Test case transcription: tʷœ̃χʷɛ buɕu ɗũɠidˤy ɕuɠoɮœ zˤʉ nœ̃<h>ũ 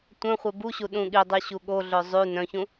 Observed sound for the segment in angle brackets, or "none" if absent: ç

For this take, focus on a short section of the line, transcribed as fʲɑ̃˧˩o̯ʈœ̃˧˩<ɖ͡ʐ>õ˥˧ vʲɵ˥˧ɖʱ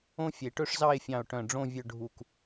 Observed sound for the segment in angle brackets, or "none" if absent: ɖ͡ʐ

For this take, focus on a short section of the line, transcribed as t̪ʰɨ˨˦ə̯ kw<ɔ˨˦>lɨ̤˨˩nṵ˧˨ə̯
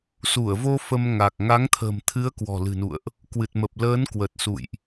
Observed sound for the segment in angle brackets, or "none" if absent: ɔ̤˨˩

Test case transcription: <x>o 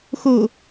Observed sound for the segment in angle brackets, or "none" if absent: x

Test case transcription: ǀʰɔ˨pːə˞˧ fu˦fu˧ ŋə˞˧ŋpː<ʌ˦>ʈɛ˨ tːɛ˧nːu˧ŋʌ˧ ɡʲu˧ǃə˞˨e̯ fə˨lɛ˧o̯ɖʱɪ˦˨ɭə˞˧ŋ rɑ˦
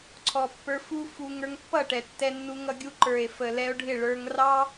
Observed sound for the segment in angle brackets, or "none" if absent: ʌ˦˨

